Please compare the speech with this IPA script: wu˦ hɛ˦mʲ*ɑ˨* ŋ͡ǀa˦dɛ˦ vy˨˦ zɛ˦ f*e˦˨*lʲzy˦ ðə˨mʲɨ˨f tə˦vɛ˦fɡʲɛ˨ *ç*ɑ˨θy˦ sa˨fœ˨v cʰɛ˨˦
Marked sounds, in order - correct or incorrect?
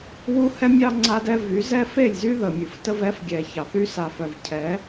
incorrect: ɑ˦, correct, correct

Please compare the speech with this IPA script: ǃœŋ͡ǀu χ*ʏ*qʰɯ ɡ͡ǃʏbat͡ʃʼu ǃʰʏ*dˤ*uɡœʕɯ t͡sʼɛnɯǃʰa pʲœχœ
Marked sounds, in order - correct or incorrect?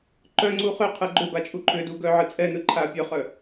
correct, incorrect: d

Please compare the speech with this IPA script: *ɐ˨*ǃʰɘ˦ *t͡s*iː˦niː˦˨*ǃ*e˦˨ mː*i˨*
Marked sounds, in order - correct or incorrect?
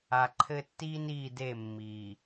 incorrect: a˨, incorrect: tː, incorrect: d, incorrect: iː˨

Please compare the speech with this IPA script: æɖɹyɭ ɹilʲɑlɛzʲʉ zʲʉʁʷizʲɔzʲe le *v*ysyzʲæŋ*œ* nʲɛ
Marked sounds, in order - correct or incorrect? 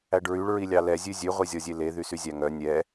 incorrect: ð, correct

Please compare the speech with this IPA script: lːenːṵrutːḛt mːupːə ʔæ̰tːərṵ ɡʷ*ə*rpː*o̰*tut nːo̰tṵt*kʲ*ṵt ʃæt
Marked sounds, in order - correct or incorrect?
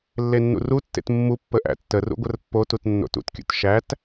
correct, incorrect: o, correct

